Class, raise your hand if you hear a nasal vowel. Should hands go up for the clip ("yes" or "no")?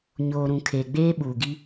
yes